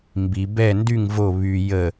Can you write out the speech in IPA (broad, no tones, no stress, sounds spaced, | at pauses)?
m b i b ɛ n d y ŋ v o β y j ə